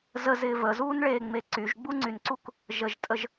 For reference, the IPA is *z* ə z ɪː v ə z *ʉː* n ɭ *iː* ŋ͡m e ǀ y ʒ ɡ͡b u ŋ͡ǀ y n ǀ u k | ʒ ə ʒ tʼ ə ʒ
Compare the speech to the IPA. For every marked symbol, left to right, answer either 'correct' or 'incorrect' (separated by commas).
correct, incorrect, incorrect